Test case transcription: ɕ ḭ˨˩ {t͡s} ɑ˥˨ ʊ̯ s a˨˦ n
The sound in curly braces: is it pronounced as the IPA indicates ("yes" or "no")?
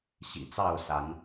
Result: yes